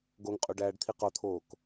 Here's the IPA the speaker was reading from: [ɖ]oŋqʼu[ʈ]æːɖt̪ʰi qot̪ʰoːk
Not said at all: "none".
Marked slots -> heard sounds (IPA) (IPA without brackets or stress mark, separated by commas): ɡ, ɖ